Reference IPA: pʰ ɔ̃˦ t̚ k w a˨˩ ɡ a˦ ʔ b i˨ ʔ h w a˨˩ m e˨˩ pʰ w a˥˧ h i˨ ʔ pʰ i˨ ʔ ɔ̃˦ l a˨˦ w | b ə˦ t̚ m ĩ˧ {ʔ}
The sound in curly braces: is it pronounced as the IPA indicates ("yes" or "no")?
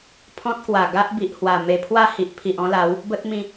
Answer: no